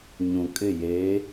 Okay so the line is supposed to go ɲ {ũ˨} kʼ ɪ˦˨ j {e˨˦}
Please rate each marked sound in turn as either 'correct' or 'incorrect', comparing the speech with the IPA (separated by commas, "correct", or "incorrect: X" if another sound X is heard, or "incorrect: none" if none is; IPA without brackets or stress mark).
correct, correct